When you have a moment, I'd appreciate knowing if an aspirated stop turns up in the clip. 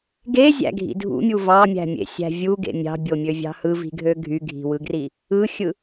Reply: no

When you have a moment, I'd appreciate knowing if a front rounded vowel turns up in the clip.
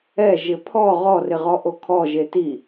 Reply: no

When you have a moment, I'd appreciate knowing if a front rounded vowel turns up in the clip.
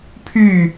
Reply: yes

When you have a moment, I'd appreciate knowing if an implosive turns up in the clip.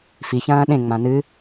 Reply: yes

